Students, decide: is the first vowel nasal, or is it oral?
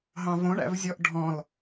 nasal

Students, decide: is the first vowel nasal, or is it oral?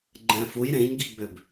nasal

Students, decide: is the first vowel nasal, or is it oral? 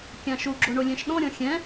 nasal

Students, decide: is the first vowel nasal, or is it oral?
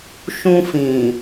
nasal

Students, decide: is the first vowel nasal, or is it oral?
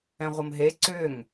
nasal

